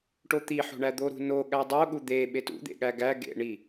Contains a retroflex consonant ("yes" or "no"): yes